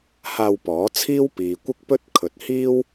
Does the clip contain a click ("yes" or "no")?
no